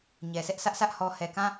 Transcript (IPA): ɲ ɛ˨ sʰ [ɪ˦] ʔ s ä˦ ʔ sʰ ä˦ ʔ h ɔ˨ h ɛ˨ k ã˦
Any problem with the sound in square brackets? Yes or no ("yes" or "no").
yes